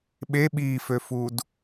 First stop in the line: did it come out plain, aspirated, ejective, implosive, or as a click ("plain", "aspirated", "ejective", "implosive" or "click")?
implosive